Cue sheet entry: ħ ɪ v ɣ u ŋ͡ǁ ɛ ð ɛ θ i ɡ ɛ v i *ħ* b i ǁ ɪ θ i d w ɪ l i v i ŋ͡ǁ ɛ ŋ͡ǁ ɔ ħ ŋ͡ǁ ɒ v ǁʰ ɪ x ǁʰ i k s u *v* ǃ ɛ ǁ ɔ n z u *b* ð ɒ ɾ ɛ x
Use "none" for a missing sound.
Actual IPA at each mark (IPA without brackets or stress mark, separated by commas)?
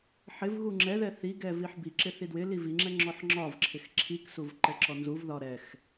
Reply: ħ, v, v